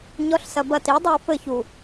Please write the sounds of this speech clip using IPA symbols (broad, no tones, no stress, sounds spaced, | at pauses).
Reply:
ɲ ɔ ɬ s ɐ b ɐ t i dˤ e w f ɘ ç u